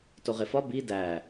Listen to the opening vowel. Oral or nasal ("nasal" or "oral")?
oral